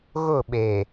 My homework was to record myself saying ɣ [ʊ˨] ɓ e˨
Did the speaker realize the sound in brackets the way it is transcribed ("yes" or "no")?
no